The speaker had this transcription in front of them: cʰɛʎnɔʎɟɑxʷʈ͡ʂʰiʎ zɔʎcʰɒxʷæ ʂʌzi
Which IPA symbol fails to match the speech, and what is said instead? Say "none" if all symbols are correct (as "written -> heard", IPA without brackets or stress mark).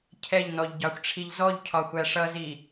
none